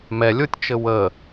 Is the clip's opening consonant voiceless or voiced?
voiced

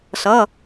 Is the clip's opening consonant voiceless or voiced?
voiceless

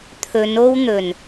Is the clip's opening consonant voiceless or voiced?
voiceless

